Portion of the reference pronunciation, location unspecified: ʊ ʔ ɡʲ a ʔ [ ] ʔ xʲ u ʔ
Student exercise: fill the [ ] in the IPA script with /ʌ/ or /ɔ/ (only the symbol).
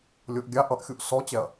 ʌ